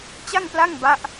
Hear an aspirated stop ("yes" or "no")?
no